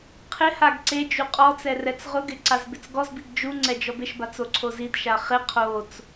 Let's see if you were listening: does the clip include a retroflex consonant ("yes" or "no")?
no